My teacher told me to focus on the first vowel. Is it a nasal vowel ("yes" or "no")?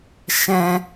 yes